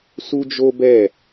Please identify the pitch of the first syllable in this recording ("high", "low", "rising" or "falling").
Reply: high